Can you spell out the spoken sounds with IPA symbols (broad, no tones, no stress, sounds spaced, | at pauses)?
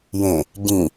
j ẽ | ɟ ĩ